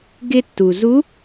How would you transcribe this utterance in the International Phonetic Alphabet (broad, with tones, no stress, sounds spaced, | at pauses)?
ɡ ɪ˧ tː u˩ z u˧˥